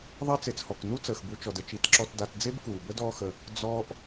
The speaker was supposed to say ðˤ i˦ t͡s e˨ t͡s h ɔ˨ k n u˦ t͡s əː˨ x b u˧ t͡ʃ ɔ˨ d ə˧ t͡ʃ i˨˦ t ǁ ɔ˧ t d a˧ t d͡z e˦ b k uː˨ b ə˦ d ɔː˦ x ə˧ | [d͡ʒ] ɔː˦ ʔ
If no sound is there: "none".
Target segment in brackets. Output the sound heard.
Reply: d͡z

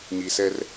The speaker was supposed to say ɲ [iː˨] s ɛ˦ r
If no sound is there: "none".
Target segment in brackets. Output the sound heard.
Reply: i˨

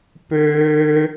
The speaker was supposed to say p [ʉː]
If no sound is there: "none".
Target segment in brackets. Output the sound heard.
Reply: øː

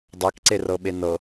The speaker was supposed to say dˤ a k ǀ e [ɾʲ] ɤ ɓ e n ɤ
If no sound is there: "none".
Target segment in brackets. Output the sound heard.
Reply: r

